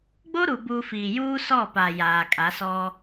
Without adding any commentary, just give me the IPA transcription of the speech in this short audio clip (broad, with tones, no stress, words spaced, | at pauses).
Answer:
ɡ͡bo˦ɾu˨buː˨ fiː˨juː˦ sɔ˦˨paː˨ jaː˨ kʼa˨˦sɔ˦